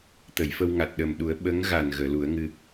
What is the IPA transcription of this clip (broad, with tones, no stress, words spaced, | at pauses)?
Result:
t̪ə˨˩˨jfə˧wŋa˨˩t̚ ɗə˨˩mɗu˨˩˦ə̯ ɓə˧˥ŋɣa˨˩n ɣəː˨˩˨lu˨˩˦ə̯ŋɨ˧